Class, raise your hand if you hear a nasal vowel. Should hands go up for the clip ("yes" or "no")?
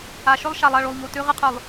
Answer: no